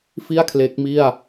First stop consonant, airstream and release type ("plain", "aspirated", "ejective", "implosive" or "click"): aspirated